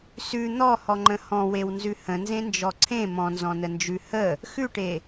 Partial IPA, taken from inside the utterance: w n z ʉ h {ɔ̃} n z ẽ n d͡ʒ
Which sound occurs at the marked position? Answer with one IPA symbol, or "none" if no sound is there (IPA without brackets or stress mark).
ə̃